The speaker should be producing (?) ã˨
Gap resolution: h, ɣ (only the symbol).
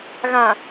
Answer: ɣ